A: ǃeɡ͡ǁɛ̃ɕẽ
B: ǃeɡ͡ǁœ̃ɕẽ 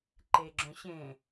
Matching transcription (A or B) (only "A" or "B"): B